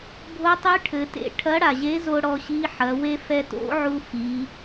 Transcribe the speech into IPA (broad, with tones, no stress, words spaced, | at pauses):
bʱo˧˥tˤɨ˧˥ ʈʰɘ˩˧tḛ˧ ʈʰɐ˧˥ɽa˩ʑe˧˥zo˧ ɽɔ˧ɕi˧˥ħɐ˩˧we˥ fɛ˧to̰˧˥ʕu˧ fi˩˧